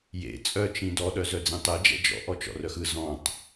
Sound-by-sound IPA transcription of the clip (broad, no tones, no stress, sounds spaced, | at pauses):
j ḛ t͡sʼ œ t͡ʃ ĩ d ɔ ɗ œ z œ d͡z ĩ tˤ e d͡ʒ ɛ̰ d͡ʒ ɔ̰ ʔ ɔ t͡ʃ ɔ̰ r œ x ɯ z ɔ̃ tˤ